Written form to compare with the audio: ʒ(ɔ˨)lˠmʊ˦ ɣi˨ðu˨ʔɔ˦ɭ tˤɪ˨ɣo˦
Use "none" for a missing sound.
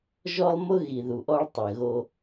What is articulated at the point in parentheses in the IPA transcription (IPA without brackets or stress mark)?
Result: ɔ˦